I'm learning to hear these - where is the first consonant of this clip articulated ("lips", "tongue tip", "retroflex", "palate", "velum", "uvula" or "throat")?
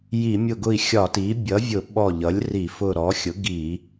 palate